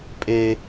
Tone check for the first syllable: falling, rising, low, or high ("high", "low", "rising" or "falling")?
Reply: high